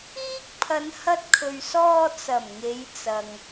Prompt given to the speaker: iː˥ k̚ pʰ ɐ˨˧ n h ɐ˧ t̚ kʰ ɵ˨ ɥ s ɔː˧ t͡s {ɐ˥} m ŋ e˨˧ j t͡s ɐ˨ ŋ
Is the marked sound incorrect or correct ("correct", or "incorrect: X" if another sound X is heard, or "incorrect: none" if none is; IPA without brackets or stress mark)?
incorrect: ɐ˨˩